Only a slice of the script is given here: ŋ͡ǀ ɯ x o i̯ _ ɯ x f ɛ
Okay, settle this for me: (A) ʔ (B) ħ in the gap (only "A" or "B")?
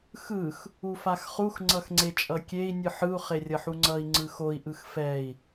A